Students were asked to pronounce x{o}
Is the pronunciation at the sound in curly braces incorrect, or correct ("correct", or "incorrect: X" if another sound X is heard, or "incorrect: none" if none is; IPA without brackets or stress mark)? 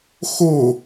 correct